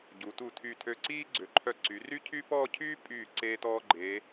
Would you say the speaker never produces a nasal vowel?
yes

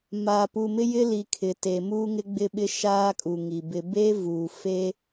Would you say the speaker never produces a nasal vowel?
yes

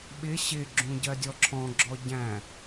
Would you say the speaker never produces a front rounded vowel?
yes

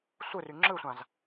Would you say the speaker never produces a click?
no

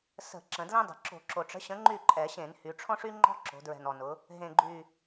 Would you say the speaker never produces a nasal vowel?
no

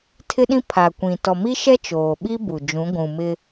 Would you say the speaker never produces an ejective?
yes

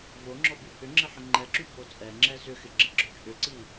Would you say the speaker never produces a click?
no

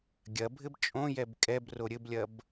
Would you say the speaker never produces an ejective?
no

